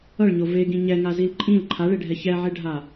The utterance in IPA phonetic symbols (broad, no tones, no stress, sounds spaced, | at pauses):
ʌ ɭ ɲ o v e ɡ ĩ ɲ ɛ ŋ a z i l ǃʼ ĩ l ǃʰ a ɭ e ɖʱ ɛ ç ɛ ʕ e ɖʱ a